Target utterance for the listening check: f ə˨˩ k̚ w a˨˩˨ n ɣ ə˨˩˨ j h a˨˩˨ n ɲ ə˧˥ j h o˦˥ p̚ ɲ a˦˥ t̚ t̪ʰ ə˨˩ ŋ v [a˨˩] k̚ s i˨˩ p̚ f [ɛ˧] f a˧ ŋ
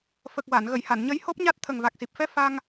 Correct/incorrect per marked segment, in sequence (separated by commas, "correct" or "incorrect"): correct, correct